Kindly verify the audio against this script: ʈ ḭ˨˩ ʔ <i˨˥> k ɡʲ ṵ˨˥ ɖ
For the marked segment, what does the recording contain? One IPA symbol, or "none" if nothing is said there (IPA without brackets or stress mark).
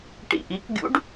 i˨˥